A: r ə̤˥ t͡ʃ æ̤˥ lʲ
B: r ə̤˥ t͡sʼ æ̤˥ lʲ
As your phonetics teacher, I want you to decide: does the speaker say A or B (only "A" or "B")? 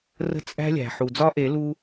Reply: B